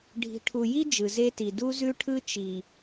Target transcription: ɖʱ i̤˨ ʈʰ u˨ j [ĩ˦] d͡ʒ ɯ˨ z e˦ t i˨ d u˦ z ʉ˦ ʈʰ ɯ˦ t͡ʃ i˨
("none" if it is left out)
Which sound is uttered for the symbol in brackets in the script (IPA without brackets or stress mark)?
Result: i˦